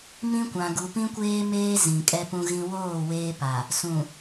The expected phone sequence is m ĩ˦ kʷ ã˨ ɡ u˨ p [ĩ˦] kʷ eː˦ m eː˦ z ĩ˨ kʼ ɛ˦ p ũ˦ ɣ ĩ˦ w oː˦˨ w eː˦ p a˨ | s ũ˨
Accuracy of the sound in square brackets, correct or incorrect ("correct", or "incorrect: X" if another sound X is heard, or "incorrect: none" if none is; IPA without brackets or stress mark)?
correct